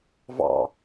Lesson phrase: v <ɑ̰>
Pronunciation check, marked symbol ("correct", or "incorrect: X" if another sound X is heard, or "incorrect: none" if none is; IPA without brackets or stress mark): correct